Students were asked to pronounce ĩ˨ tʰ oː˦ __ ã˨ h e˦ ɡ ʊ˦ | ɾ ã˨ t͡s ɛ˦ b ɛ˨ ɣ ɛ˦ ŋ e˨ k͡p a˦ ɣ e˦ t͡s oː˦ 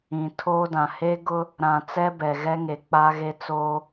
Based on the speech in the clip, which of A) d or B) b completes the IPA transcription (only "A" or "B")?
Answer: A